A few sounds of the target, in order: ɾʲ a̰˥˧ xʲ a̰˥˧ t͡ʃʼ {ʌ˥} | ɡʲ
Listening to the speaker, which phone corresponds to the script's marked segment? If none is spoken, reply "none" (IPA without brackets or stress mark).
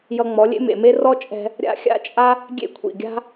a˥